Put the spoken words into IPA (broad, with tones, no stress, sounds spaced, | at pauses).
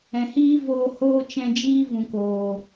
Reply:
ɛ̃˨ h iː˦ v oː˧ h oː˦ t͡ʃ ɛ̃˧ d͡ʒ iː˦ v ũ˨ k oː˨